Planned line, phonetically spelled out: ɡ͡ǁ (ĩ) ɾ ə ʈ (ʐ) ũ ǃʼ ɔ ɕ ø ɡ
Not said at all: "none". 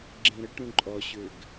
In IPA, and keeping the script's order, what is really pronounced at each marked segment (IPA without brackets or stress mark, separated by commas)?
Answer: ẽ, ɾ